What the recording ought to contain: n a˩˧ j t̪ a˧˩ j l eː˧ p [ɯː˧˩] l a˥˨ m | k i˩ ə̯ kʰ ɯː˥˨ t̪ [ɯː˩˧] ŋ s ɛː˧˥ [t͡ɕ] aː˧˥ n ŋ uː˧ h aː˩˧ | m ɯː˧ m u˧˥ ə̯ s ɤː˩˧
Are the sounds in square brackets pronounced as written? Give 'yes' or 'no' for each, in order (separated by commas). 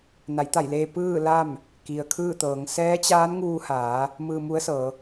no, no, yes